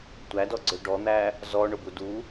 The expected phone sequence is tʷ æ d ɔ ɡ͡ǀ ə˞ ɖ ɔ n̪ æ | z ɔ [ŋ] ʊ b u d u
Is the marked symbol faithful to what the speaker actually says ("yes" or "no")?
no